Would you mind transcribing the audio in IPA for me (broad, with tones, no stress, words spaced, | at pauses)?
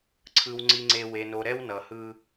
ǀʰɯ˨w ŋ͡ǀi˨ŋ͡ǀe˨ we˨no˨ɾɛ˦w nʌ˨hɯ˦